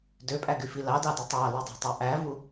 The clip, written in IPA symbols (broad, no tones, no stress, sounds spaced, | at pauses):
d ø pʼ æ ɡ y f i l ɑ d ɑ d y tˤ ɑ l y dˤ ɑ̤ tˤ ɑ ʔ æ v u